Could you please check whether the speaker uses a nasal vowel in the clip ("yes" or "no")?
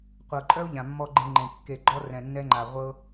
yes